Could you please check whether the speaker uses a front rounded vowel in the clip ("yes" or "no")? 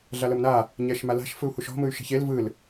yes